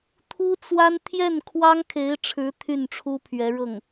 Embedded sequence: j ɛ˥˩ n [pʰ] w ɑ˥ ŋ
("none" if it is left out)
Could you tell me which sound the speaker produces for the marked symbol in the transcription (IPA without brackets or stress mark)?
kʰ